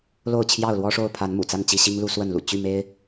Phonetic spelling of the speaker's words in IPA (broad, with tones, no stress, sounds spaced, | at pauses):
l o˥˨ ʊ̯ t͡ɕʰ j ɑ˥˨ ʊ̯ l w ɔ˦ ʂ o˥˨ ʊ̯ pʰ a˨˦ n m ṵ˨˩ t͡s a˥˨ n t͡ɕ i˥˨ ɕ i˦ ŋ l u˦ s w ə˥˨ n l ṵ˨˩ t͡ɕ y˥˨ m e˦ ɪ̯